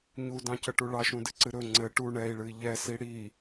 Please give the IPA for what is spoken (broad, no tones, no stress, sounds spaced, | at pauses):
ɲ u d ɑ̃ c ə ʈ u ɭ ɑ ʃ ũ d ɨ ǀ ɨ ɾ ɵ ŋ͡ǀ ɘ ʈ u ɳ ɛ i̯ ɭ ɨ i̯ ʎ ɛ s i ɽ i